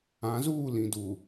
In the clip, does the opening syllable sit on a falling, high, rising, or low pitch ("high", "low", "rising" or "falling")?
rising